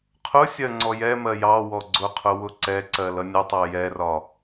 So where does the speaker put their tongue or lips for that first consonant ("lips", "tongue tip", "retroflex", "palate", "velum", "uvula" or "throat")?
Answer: uvula